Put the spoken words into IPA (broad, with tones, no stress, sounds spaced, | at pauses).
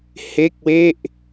h e˥˩ k̚ w e˥˩ ʔ